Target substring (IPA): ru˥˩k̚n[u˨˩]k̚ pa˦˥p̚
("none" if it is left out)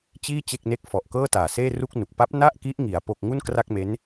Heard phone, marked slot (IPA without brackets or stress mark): u˨˩